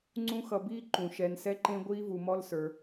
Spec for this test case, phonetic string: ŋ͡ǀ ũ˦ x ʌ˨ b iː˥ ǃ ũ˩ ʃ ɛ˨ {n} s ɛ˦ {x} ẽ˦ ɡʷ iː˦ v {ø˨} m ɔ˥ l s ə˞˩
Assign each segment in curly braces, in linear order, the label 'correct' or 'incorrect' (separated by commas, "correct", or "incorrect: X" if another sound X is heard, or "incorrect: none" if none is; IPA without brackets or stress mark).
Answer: correct, incorrect: ǃ, incorrect: u˨